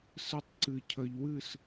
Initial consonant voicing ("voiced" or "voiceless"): voiceless